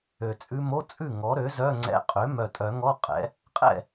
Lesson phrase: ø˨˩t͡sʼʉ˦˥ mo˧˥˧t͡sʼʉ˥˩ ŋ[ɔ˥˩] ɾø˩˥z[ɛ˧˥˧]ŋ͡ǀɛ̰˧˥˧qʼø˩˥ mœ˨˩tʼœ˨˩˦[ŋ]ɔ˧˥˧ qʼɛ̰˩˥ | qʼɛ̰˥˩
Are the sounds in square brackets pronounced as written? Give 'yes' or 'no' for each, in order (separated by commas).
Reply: no, no, yes